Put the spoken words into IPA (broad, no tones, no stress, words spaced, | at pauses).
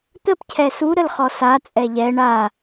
t̪əp cʰɛsu ɾəlχɔsa t͡sʼɛʎɛ ɳa